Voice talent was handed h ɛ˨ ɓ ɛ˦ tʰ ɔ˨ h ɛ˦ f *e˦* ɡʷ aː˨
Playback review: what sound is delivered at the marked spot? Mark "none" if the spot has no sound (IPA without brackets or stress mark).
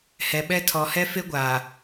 e˦